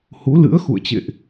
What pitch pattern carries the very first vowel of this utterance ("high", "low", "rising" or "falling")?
rising